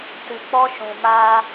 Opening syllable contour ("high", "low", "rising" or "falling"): low